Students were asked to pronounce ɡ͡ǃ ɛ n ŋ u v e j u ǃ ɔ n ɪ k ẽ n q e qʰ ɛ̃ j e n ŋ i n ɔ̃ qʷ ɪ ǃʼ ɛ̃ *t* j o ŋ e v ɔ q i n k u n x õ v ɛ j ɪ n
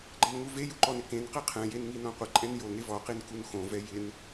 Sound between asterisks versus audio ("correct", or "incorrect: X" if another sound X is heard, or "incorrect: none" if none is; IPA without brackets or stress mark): incorrect: n